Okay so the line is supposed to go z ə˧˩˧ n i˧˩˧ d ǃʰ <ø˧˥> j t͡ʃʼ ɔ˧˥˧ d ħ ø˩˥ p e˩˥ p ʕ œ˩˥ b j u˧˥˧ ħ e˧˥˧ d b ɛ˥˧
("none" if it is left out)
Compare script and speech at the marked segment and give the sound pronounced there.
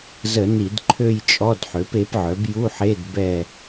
ø˥˧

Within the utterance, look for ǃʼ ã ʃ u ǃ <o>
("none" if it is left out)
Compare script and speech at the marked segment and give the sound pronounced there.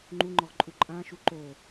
o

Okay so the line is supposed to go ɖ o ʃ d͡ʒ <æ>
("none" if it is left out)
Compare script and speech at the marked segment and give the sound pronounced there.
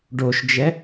ɛ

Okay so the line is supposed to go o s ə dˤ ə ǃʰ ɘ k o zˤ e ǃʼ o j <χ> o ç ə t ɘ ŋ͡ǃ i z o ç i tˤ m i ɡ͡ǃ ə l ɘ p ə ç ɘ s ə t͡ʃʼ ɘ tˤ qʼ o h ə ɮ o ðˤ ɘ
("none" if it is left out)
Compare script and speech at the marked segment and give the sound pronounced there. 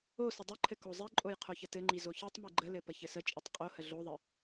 qʰ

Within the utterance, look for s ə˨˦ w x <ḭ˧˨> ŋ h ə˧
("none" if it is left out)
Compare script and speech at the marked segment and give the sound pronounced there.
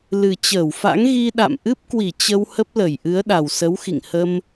ḭ˧˨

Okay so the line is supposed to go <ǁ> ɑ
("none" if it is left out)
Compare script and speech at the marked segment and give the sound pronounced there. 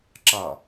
ǁ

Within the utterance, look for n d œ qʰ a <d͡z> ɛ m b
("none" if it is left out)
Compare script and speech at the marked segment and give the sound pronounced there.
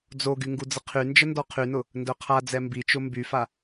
d͡z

